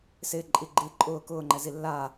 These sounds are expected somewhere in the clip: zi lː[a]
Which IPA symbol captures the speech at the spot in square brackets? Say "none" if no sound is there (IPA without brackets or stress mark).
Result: a